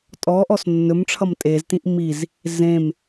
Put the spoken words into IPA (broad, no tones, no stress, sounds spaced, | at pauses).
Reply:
tʼ ɔ ʔ ɔ s nː ɵ m ʈ͡ʂʰ ʌ m tʼ e z t ĩ ʔ m i z | z ẽ m